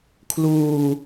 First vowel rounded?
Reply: yes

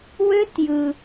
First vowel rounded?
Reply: yes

